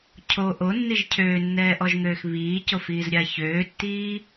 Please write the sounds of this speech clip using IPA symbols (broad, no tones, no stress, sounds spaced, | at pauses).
cʰ o ʔ o nː i ʒ cʰ øː nː ɛː ʔ ɔ ʒ ŋ øː x β iː c o f iː z ɾʲ a ç øː tː iː